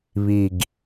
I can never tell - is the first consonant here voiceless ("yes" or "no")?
no